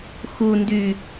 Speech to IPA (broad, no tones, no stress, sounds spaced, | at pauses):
x u n d y